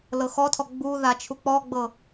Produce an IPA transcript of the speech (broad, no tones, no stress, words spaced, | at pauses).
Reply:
lɤxɔtʰɔ ɡ͡bu ðat͡ʃʰuk͡pɔɡ͡bɤ